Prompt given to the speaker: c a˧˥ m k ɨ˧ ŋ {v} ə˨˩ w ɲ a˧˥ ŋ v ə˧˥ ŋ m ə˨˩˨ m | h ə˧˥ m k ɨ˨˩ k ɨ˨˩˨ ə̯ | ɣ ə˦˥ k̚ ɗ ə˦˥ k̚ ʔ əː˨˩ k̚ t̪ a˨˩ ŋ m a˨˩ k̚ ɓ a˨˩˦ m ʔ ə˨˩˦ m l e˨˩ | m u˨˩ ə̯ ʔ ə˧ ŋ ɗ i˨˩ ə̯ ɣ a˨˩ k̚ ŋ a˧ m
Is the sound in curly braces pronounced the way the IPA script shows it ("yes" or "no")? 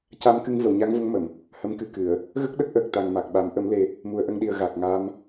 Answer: yes